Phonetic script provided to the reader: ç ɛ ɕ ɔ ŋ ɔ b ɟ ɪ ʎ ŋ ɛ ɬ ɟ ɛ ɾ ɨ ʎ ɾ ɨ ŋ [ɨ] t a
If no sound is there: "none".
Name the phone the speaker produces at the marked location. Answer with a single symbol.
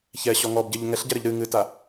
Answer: ɨ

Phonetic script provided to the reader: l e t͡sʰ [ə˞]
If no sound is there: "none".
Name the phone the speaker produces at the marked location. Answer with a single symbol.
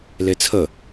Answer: ə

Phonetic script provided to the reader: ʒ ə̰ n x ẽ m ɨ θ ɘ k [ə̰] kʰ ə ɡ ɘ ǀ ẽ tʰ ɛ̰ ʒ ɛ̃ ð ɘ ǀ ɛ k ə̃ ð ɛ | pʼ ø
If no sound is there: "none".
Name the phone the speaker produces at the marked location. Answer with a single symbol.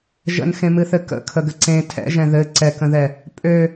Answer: ə̰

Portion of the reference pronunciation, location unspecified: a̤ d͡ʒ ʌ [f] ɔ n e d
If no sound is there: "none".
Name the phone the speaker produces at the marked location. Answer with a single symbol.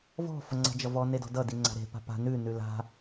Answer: v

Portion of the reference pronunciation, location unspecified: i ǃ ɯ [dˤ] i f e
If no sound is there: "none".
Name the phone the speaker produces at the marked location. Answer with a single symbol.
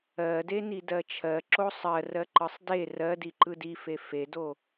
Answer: d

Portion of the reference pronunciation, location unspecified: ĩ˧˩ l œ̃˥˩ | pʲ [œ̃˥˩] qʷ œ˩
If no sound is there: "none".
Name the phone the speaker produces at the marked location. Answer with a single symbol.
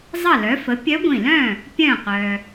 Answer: œ̃˧˩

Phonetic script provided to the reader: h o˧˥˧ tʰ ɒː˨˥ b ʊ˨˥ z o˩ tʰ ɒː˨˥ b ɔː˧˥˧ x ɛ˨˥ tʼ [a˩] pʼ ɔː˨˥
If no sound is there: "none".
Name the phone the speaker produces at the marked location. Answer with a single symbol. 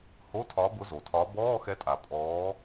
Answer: a˩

